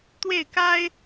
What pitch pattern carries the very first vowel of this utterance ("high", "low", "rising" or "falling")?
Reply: falling